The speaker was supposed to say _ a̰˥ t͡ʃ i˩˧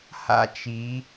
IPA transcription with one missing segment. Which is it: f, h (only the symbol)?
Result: h